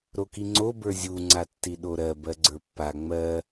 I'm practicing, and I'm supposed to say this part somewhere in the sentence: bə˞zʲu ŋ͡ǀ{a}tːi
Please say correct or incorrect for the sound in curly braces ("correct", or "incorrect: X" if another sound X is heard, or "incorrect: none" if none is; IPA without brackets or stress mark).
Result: correct